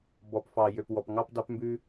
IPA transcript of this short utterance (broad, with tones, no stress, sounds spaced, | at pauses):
b ɔ˨ p f ɑ˨ j ø˨ p w ɔ˨ p ŋ ɑ˧ p d ɑ˧ p m b ʉ˧